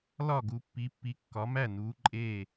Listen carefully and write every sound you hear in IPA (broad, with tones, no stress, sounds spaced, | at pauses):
l ɒ˥˩ ɡ u˨˦ pː i˨˦ pː i˨˦ kː ɒ˨˦ m æ˥˩ n uː˨˦ ǃʼ eː˥˩